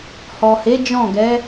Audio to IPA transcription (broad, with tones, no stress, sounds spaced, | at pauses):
h ɔ˨ h e˨˦ d͡ʒ ɔ̃˦˨ ɡ ɛ˨˦